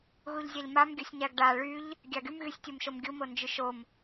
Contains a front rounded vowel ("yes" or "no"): yes